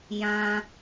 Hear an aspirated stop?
no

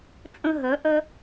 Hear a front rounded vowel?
yes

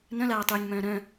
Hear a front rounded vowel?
yes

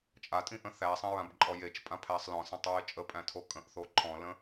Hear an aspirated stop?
yes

